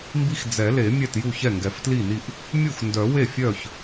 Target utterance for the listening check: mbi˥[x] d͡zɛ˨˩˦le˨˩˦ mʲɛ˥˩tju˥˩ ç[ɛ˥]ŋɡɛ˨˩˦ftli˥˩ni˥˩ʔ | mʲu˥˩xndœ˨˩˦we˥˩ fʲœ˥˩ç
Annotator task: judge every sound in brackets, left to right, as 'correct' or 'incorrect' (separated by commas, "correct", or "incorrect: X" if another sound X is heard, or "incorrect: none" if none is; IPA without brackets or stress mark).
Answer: correct, incorrect: ɛ˥˩